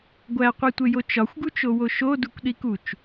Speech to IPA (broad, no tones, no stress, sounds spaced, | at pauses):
ɡʷ æ qʷ i tʷ e j o t͡ʃ ɒ xʷ ɡ u t͡ʃ o w o ʃ o d u kʷ ɗ i k u t͡ʃ